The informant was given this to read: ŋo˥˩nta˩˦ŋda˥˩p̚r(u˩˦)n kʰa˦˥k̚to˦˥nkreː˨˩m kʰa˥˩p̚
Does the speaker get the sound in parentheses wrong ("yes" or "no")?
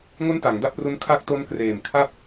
yes